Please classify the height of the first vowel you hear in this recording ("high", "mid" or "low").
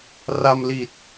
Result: low